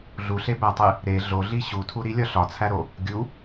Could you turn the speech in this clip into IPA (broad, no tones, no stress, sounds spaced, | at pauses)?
ɮ u ɬ e b æ tˤ e | ɾ e ɮ o ɮ i ɕ u tʰ u ɾ i lʲ ɒ ɬ ɒ t͡sʰ æ ɾ o | ɡʲ u